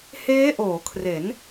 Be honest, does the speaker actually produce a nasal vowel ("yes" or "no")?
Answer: no